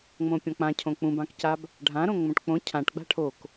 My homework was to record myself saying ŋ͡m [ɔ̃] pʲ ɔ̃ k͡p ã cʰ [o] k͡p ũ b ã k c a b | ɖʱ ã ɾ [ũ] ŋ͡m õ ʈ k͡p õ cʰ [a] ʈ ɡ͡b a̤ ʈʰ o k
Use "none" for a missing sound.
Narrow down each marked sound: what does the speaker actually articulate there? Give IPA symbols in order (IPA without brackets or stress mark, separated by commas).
õ, õ, õ, ã